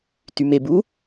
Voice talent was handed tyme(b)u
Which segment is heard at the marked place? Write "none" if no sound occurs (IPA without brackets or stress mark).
b